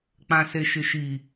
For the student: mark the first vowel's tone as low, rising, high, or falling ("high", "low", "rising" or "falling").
low